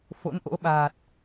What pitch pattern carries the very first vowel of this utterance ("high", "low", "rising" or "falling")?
rising